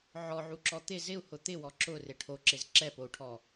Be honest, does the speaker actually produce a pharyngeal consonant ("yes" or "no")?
yes